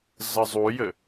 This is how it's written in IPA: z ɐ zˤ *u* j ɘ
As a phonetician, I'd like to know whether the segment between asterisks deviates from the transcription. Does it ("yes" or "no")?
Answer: no